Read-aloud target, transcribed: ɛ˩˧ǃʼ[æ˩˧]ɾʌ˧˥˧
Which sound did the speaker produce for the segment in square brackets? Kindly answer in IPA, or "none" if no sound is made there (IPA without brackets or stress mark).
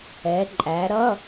æ˩˧